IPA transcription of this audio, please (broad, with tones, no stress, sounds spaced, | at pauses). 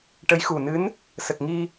ʈ ə˧˥ j x u˨˩ n ɨ˧˥ n | s ə˨˩ k̚ ŋ i˧